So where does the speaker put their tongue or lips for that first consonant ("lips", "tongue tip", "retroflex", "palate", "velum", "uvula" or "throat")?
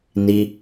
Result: tongue tip